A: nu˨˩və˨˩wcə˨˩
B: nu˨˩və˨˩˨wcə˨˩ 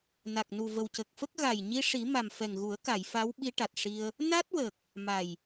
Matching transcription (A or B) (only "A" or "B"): A